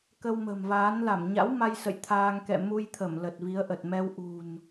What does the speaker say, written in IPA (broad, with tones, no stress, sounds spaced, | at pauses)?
k ə˧ w m ə̤˨˩ m v aː˨˦ n l a˧˩ m ɲ a̰˧˥ w m a˧ j s ə̰˧˨ j t̪ʰ aː˧ ŋ k ɛ̰˧˨ m u˧ j t̪ʰ ə˧˩ m l ə˨˩ t̚ v i˨˦ ə̯ ʔ ə˨˩ t̚ m ɛ˧ w ʔ ṳ˨˩ n